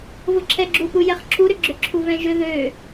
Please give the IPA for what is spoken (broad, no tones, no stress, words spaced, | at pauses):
vʊǁʰɛɡ͡ǁupu jɛχǁʰuɾʏ ɡ͡ǁʏǁʰuvɛ̃ʒʏ ðø